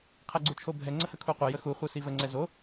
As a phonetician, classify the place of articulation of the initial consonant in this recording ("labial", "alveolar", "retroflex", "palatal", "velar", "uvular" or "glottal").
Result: uvular